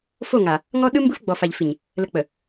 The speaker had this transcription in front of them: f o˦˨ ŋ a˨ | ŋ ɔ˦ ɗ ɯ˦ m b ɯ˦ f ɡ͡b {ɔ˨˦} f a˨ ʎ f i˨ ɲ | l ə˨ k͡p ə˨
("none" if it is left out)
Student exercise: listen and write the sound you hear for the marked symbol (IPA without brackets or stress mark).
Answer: ɔ˨